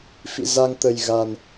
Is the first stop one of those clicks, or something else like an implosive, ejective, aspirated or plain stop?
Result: plain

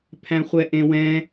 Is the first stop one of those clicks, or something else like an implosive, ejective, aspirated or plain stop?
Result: aspirated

